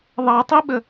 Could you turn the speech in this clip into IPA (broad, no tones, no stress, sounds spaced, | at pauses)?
ðˤ ɑ tˤ i ɓ ə